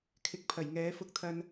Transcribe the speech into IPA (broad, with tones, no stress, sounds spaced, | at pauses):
kʰ ɪ˨˥ k̚ pʰ ɐ˨˩ j ŋ ɛː˨˥ f ʊ˧ k̚ t̪ʰ ɐ˧ n